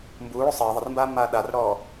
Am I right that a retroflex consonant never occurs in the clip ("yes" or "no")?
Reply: no